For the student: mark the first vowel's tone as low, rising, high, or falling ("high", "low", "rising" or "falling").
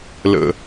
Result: high